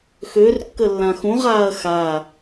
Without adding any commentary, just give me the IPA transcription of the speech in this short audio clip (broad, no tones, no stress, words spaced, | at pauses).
xør kːəlːãxũʁ aːɐ̯xa